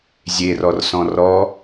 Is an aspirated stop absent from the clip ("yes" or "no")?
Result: yes